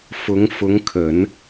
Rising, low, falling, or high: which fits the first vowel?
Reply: rising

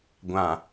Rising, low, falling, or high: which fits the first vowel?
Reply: low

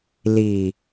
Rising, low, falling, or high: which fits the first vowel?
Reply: low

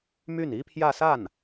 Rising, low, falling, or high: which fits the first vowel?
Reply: falling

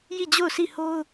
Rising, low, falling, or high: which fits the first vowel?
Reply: falling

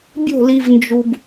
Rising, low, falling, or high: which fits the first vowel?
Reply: falling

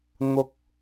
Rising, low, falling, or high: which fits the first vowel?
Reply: high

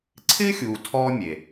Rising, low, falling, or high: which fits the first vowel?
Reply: high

